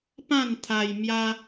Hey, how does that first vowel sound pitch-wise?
falling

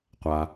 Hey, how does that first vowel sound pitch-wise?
low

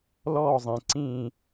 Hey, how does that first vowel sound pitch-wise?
falling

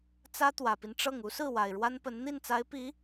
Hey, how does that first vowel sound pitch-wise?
high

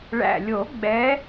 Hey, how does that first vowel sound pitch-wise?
low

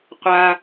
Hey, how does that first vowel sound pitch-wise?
low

